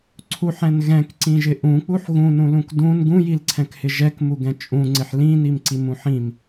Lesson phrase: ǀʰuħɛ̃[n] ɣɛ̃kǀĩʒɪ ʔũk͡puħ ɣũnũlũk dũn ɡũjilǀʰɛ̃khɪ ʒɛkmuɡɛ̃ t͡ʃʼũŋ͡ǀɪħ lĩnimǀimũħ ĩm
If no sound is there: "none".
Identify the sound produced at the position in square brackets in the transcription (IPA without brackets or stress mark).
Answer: n